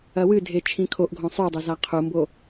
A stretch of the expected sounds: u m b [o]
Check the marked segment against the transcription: correct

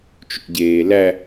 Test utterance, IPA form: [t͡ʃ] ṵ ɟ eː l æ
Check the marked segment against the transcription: correct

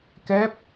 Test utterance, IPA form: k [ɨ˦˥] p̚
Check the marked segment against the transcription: incorrect: ɛ˦˥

